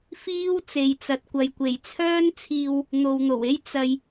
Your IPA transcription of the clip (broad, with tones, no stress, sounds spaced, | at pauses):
f iː˥ w t͡s e˨ j t͡s ɐ˨˥ t̚ kʷ ɐ˨ j kʷ e˨˩ j t͡sʰ œː˥ n t͡sʰ iː˧ w | n̪ o˨ w n̪ o˨˩ w e˥ j t͡s ɐ˧ j